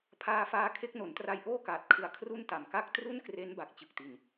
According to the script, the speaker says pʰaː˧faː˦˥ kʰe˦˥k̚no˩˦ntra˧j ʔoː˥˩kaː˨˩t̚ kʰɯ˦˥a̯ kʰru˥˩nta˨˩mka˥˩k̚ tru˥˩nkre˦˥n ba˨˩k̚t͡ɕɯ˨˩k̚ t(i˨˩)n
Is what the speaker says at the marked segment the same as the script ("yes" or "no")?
yes